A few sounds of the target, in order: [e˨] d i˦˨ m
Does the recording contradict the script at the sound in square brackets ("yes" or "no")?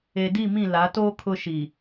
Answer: no